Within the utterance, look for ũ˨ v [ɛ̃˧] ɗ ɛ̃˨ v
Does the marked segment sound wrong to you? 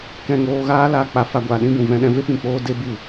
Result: yes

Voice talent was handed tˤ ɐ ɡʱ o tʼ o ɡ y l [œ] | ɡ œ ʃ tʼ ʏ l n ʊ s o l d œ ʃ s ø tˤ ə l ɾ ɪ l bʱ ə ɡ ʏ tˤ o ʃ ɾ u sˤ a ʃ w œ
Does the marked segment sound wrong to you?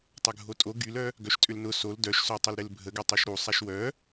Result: no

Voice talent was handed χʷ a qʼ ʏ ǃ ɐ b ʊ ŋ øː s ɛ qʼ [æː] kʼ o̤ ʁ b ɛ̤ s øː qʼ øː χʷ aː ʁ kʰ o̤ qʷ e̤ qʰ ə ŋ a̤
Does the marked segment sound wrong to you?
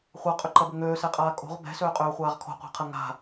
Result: yes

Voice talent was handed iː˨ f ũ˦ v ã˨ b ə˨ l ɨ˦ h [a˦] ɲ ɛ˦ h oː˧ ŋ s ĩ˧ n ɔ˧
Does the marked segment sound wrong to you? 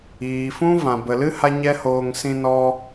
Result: no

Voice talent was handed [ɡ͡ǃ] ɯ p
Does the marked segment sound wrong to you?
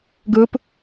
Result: yes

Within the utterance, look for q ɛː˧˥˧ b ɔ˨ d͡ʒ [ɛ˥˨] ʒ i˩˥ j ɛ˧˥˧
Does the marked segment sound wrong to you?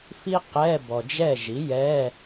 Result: no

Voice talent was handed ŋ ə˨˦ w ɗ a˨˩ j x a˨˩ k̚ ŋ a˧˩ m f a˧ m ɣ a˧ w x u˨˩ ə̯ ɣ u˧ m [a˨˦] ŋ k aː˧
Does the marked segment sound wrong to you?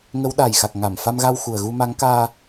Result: no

